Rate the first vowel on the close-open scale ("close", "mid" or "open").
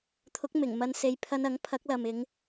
close